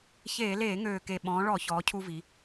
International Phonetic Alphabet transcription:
ç eː˧˩˧ l eː˧˩˧ ŋ øː˨˩ k e˨˩ ɓ ɔ̃ː˩˧ ɭ ɔ˧˩˧ ç ɔː˩˧ cʰ u˧ v i˩˧

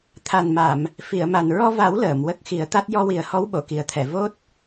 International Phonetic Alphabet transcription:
t̪ʰ a˨˩ n m a˨˩˨ m | f i˨˩˨ ə̯ m a˨˩ n ɹ ɔ˧ v a˨˩˦ w l əː˨˩˨ m w ə˦˥ k̚ x i˨˩˦ ə̯ t̪ a˦˥ t̚ j ɔ˧ w i˨˩ ə̯ h ɔ˧˥ w ɓ o˨˩˨ k i˨˩ ə̯ t̪ʰ ɛ˨˩˨ v o˦˥ t̚

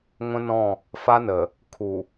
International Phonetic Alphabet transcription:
ŋʷ ə̃˦ n ɔ̃˦˨ | f a˦ n ə˨ | kʰ u˨

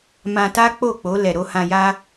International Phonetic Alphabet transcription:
m ã˧ t a˦ k͡p o˦˨ k͡p o˨˦ l ɛ˧ ɾ o˦ h ã˧ j a˦

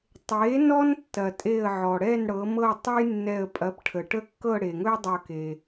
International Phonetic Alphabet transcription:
tˤ e˩˥ n ɔ˥ n tː ɐ˩ tʼ e˧˩ ə̯ ʕ ɔ˩ ɽ ɛ˥˨ n ɽ ɤ˩˥ m ɤ˥˨ tˤ u˥ j nː ɛ˧˩ ə̯ pʼ ɐ˩˥ p ʈʰ ə˩ ʈ ə˥˨ kː ɤ˥˨ ɽ e˩ ŋ ɵ˥ j dˤ ɤ˧˩ k e˩

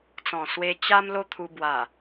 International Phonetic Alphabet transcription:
t͡s ɔ̃˨˩ s w e˧ t͡ɕ a˧ m l o˧ t̪ʰ u˧ b w a˨˩

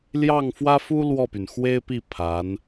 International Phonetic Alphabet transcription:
l j ɑ˥˩ ŋ f w ä˥ f u˥ l w ɔ˥˩ p y˩ n x w e˥ ɪ̯ p i˥˩ pʰ a˧˥ n

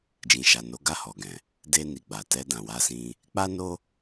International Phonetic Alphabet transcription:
d͡ʒ ĩ˨ ʃ a˨ n o˨˦ ɡ a˦˨ h ɔ˨ ɡ ɛ̃˨ | d e˧ n i˨ ɡ͡b a˨ t ɛ˧ d ã˨ w a˧ s ĩ˧ | k͡p a˦ n o˦

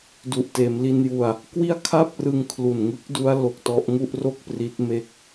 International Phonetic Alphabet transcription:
d u˨˩ ʔ t eː˩˦ m l i˧ n j u˧ a̯ | k w i˥˩ a̯ kʰ a˥˩ p̚ r ɯ˧ ŋ kʰ l u˨˩ n ŋ ɯ˦˥ k̚ d u˦˥ a̯ l o˦˥ k̚ t ɔ˦˥ ʔ ŋ u˥˩ ʔ r o˥˩ k̚ p r i˦˥ t̚ m e˥˩ k̚

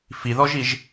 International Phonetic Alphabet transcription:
f i ð ɔ ʒ i ʒ

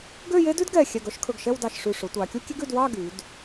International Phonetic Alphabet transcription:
ɡ ø˥˧ j e˥ d ʉ˥ d ɡ ɛ˧˩ xʲ ɛ˧˩ ɡ œ˧ ʃ kʰ ɵ˧˩ ɡ ʃ ɛ˥˧ w d ɑ˧˩ ʃ ʂ ʉ˧˩ ʂ ɵ˩˧ tʷ ɑ˩˧ kʲ u˥ kʲ e˥ ɡ ʉ˧ d w ɑ˥˧ ɡ y˩˧ d

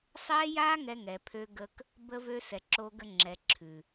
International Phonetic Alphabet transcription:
sˤ ɛ˦ j a˦ ŋ ɛ˦ ŋ ɛ˨ pʰ ø˦ ɡ ə˦ k | b ə˦ v ø˦ s ɛ˨ ǁ o˦ ɡ ə˦ ŋ͡ǁ ɛ˨ ǁʰ ʉ˨

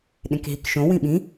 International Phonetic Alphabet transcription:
ɗ ẽ k ɦ i k ʃ õ w ĩ ɓ ĩ

